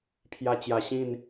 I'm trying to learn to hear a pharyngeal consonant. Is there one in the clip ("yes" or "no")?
no